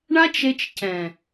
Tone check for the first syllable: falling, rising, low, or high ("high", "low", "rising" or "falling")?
high